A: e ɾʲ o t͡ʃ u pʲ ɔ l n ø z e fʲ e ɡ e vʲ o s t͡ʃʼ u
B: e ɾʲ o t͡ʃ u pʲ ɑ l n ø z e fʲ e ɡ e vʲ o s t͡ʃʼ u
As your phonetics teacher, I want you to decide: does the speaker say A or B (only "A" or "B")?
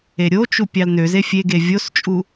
B